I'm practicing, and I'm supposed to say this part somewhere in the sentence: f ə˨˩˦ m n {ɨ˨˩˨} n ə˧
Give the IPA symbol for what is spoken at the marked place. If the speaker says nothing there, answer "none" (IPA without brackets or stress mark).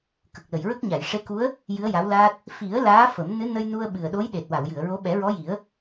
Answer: ɨ˧˥